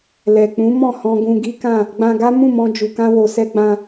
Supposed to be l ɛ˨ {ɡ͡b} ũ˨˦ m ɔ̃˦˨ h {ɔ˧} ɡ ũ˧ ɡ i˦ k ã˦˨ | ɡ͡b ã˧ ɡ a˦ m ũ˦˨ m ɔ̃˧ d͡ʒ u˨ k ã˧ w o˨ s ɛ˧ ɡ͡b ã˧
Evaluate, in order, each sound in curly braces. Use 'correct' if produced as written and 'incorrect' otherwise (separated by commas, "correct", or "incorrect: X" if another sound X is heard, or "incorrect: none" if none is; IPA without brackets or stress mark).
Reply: incorrect: k͡p, incorrect: ɔ̃˧